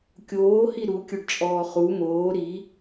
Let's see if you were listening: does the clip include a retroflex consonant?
yes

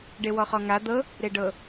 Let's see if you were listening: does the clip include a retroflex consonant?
yes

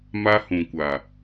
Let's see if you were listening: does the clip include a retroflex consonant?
no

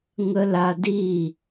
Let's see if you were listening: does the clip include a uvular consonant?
no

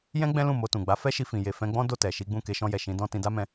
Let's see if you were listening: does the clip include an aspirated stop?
no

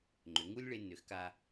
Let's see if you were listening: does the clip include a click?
yes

